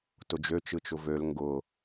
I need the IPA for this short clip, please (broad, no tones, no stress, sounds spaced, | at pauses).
t ʊ d͡ʒ ø t͡ʃ ɯ t͡ʃ ʊ v ø l ŋ ɡ ʊ